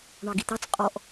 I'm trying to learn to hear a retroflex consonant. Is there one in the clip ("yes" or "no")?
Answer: yes